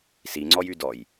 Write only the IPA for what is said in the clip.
s i ŋ͡ǀ ɔ j y d ɔ j

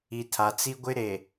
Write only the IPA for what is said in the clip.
i˨ tʰ a˨ t͡s i˦ ɡʷ ɪ˦ ɾ e˨

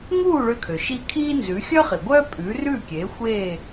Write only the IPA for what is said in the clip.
ŋ uː˥˩ ɭ ø˧ kʰ ø˩ ʃ i˧ kʰ iː˥ n z ʉ˩˥ xʲ œ˥ χ i˩ ɡʷ œː˥ pʼ ʉː˩˥ r ʉː˥˩ kʲ eː˩˥ xʷ eː˥˩

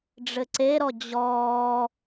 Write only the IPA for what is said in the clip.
ɖ͡ʐ ɘ ǀ e ɾ ɔ d͡ʑ ɔː

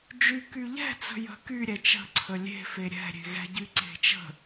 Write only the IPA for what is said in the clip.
d͡ʒ y k y ʎ ɛ̤ t͡s ə̤ j ə̤ k y ɾʲ ɛ t͡ʃ ə̤ ǀʰ ə lʲ e̤ f e ɾʲ ɛ̤ ɾʲ e̤ ɣ ɛ̤ ɟ y ǀ e̤ t͡ʃ ə̤

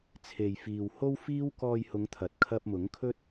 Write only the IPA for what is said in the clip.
t͡sʰ e˨ j f iː˨ w h o˥ w f iː˥ w k ɔː˧ j h ʊ˨˧ ŋ t̪ʰ ɐ˨˥ t̚ kʰ ɐ˧ p̚ m ʊ˨˥ ŋ kʰ ɵ˥ t̚

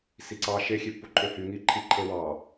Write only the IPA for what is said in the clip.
s i ǀ ɑ ʃ e xʲ e pː u ǃʰ ø h y ŋ i ǃʰ i ǃʰ e w ɑ

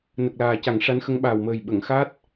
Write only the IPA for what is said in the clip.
n ə˨˩ k̚ l aː˨˩ c a˨˩˦ ŋ ʂ a˧˥ n x ə˧˥ ŋ ɓ aː˨˩ w m əː˨˩ j ɓ ə˨˩˨ ŋ x a˦˥ t̚

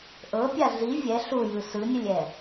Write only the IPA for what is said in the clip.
ʔ ɤ pʲ a ɮ i vʲ ɛ ɬ u j ɯ s ɯ nʲ ɯ lʲ ɛ

